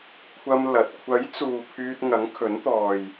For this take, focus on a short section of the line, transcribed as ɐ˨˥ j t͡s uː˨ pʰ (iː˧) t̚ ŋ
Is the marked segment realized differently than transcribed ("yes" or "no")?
yes